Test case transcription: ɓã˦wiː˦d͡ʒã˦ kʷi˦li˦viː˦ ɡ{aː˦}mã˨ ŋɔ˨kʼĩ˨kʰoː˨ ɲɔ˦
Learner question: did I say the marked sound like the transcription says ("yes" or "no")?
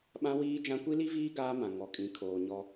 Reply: yes